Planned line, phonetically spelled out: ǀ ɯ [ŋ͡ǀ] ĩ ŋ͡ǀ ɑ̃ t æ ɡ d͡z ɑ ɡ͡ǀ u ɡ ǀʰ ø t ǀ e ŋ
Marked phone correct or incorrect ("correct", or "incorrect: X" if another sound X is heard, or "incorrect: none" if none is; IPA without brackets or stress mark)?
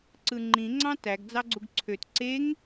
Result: incorrect: ŋ͡ǃ